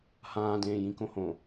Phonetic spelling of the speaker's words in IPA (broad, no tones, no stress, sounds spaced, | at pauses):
h ãː d ẽː j ĩ k õ h õ